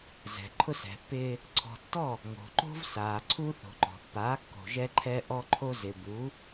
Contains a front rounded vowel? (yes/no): no